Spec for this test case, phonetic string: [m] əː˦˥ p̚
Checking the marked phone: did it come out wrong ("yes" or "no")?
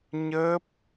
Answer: yes